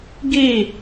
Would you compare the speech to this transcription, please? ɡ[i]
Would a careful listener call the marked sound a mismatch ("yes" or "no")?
no